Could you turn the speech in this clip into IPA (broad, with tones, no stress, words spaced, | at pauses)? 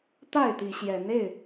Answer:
t̪a˥˨ɪ̯t̪i˨˦ɕjɛ˨˦n e˥˨ɪ̯